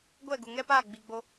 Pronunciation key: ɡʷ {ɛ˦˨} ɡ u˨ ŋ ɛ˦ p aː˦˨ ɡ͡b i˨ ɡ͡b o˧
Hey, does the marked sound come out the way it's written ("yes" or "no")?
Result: yes